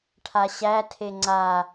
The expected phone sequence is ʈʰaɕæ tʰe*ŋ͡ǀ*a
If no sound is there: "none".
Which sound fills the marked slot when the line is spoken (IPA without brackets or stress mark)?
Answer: ŋ͡ǀ